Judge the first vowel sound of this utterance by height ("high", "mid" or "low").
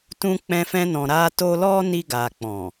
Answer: high